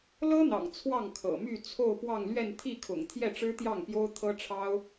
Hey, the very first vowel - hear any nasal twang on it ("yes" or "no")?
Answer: no